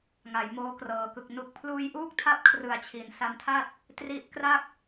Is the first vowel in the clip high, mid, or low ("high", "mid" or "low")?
low